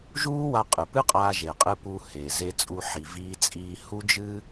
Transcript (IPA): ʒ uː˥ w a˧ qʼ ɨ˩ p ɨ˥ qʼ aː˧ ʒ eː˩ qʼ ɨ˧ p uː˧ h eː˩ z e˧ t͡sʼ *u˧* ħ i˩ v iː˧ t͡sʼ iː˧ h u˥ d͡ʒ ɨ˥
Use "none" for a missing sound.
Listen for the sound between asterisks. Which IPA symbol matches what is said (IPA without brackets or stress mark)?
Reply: u˧